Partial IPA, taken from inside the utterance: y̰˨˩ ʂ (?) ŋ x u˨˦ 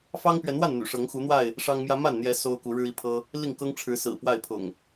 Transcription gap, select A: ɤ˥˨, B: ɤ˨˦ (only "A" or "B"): B